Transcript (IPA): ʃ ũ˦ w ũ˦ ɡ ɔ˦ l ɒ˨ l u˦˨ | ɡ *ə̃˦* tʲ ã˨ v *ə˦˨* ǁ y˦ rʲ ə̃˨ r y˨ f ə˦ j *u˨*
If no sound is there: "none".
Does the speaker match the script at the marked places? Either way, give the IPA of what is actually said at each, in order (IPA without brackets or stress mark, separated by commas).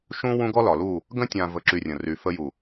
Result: ə̃˦, ə˦˨, u˨